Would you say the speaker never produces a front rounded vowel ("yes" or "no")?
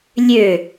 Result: no